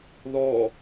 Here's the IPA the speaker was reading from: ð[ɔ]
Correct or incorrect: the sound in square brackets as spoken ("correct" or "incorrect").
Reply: correct